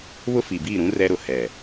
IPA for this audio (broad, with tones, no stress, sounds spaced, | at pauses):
β ʊ˦ f i˨ b iː˦˨ ɾ ũ˦ r ɛ˦ ɾ ʊ˨ h ɛ˨